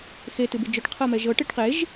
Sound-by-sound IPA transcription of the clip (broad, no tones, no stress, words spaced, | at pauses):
xe tɨbɨd͡ʒœʈ qʰɤmɛʒɤ ʈeʈqeʒ